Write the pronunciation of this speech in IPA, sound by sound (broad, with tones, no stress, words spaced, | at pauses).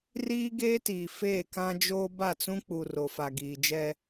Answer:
riː˦ɡeː˦tiː˨ feː˦˨kã˦d͡ʒoː˦ ba˦˨t͡sũ˦k͡pu˨ ro˨fa˨ɡiː˨d͡ʒɛ˦